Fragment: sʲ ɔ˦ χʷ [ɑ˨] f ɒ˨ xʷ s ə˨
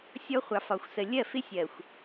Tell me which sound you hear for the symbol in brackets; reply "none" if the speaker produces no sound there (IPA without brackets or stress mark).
ɑ˨